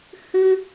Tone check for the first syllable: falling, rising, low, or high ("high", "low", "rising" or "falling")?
high